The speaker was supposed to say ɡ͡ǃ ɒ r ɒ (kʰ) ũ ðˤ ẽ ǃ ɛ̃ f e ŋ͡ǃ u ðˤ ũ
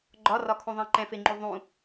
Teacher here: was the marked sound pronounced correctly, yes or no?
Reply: yes